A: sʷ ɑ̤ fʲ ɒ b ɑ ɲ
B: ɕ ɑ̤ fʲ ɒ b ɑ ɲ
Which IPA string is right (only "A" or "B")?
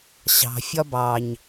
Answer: B